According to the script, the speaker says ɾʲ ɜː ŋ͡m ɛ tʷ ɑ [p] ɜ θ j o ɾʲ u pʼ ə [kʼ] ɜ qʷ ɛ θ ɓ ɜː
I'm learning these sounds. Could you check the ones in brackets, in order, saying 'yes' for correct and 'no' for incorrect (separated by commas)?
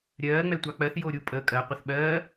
no, yes